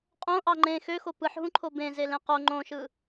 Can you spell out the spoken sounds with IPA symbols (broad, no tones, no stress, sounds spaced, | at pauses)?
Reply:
qʼ õ ʔ ɑ ŋ͡ǃ ẽ x ø x o p ɯ ħ ɦ ũ ǃʰ o b ẽ z e l ẽ q o ŋ͡ǃ õ ʃ ɯ